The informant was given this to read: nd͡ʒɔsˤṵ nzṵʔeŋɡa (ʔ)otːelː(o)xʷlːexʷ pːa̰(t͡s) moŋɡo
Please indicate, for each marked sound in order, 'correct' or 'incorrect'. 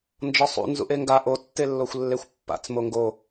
correct, correct, correct

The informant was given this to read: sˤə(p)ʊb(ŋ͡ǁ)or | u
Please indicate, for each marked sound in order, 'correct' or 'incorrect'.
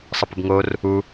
correct, incorrect: ŋ

